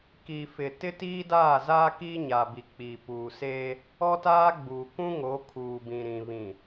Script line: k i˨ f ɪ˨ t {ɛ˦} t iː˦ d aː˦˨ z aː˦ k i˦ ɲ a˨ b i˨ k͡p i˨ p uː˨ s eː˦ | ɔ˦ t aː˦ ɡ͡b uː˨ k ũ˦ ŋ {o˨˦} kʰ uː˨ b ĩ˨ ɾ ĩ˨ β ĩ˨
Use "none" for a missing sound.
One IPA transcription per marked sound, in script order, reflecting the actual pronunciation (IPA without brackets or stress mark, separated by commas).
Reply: ɪ˦, o˨˦